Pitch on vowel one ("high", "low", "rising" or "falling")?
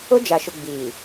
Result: high